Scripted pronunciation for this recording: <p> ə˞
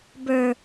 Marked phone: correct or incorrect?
incorrect